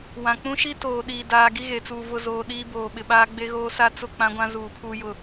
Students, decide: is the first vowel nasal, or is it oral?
nasal